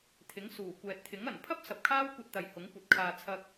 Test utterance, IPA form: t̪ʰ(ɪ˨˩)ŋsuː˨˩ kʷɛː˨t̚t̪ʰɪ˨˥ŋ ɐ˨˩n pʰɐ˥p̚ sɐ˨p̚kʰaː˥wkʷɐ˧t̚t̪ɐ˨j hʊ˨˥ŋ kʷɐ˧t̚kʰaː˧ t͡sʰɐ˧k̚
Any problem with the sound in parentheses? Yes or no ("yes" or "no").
yes